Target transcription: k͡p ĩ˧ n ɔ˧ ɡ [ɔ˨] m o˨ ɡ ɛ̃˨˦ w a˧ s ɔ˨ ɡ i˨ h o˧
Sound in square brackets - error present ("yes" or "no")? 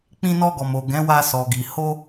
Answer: no